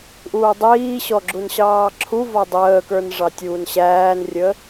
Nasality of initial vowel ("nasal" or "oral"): oral